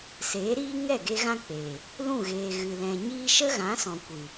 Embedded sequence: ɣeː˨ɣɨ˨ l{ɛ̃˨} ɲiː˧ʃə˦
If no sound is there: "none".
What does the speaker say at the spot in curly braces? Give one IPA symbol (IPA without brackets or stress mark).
ɛ̃˨